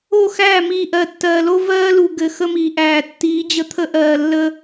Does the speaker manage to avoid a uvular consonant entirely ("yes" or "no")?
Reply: yes